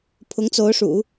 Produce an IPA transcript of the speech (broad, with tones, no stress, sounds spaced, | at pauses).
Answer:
pʰ ʊ˧˥ ŋ t͡s o˧˥ ʊ̯ ʂ ṵ˨˩˦